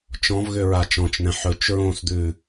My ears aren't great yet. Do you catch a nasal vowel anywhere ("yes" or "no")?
yes